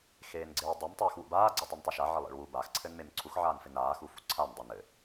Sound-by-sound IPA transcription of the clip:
xeːnɡ͡ǀɪːdˤɘm tˤɪːxwṵbaː ɡ͡ǀɘtˤɘntˤuʃa ʕɪlˠḛɭwu bax ǀʰɘnmemǀʰux ʕaːnfɪnaː xufṵǀʰan dˤunɘ

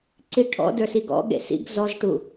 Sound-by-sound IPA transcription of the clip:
ǀiʈʰɔ̰ də˞siɡɔ̰ɠḛ sḭɡ zɔzʈu

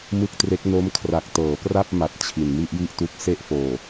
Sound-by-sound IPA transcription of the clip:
mɯ˥˩k̚tre˦˥k̚ no˦˥mkʰra˨˩k̚tɤː˩˦ pra˥˩p̚ ma˨˩t̚ t͡ɕʰi˨˩nmi˥˩ʔji˥˩ʔtu˦˥k̚ se˥˩ʔfoː˨˩

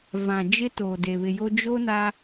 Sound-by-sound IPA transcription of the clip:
vã˨d͡ʒɪ˦ toː˨de˨βɪ˨jo˦ d͡ʒo˦na˦

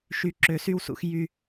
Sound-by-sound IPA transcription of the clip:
ʃy˨˩ ǁø˨˩˦sy˥˩wsṵ˨˩˦x jy˨˩

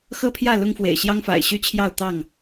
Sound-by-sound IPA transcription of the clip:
xɤ˦pʰjä˥˨ lʊ˦ŋfwḛ˨˩ɪ̯ ɕjɑ˦ŋfa̰˨˩ɪ̯ɕy˥˨t͡ɕʰjɑ˥˨ʊ̯ t̪ɑ˥˨ŋ

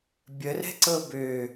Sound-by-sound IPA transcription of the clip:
bʲərɛ̤ǀɤ bø

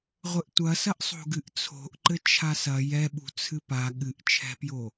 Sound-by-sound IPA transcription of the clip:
ʁʷɘʔtʷɐsɐʔ sˤo̤ɡɨʔt͡sʰo̤ʔǃɘ t͡ʃʰasɐ jɛɓṳ t͡sʰɨpa ɠɨʔt͡ʃʰɛ̤pjo

